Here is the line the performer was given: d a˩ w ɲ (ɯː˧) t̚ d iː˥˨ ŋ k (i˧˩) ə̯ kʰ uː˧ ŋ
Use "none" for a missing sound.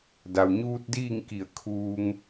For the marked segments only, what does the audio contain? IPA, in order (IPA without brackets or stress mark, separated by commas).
uː˧, i˧˩